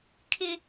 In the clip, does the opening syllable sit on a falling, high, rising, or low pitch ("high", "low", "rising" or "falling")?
high